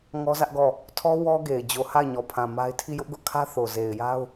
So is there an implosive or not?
no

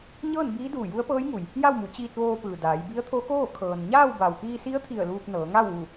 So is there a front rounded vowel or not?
no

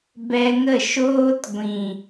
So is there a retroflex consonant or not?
no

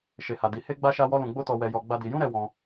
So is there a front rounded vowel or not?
no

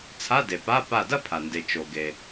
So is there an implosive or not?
no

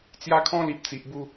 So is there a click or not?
no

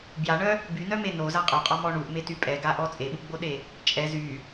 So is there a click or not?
no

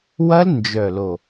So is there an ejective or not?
no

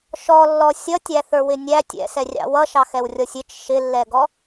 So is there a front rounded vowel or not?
no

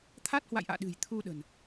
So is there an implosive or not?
yes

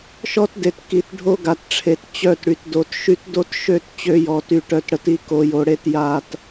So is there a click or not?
no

